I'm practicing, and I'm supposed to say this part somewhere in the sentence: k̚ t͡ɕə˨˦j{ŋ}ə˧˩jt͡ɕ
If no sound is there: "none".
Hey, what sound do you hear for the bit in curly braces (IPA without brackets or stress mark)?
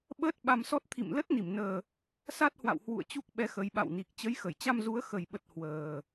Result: x